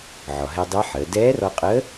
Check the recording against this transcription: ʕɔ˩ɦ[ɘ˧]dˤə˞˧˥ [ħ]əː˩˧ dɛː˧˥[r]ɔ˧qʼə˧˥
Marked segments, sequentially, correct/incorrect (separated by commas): incorrect, correct, correct